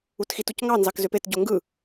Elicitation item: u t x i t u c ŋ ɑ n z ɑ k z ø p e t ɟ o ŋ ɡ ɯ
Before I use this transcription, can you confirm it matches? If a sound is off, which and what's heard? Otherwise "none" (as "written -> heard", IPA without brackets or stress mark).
none